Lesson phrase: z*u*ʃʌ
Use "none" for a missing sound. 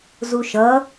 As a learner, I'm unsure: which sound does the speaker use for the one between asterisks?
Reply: u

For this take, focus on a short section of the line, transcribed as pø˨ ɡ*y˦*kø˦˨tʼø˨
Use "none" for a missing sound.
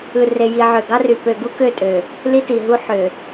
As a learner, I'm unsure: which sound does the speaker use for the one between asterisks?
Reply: u˦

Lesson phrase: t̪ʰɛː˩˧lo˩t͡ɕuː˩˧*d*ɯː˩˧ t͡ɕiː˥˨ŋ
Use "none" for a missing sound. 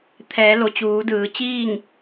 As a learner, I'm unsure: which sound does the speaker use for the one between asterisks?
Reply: d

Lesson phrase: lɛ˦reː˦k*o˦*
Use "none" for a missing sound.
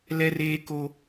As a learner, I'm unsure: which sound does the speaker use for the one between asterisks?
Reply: o˦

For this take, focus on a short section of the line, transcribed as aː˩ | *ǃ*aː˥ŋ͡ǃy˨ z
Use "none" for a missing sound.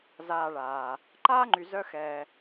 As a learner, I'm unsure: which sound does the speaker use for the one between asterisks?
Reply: ǃ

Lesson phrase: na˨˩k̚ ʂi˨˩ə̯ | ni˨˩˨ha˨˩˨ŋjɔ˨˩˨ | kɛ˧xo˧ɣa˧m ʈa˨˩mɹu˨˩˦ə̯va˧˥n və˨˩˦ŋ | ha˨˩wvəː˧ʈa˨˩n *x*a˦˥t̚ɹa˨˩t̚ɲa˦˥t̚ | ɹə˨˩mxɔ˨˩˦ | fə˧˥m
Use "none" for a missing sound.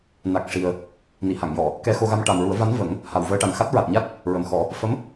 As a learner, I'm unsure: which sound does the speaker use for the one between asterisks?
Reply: x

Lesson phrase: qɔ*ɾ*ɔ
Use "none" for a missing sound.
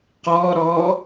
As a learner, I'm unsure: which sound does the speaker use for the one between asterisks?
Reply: ɾ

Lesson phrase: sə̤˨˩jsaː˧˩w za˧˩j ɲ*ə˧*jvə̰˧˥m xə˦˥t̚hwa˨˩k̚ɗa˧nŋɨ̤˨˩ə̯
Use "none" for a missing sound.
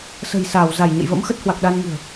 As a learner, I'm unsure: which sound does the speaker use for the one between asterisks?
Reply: ə̰˧˨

